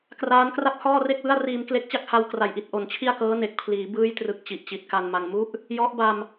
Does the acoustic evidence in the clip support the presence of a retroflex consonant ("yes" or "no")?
no